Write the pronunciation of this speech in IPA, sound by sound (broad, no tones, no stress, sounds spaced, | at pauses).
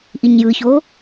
ʔ i ɲ j ɯ ç o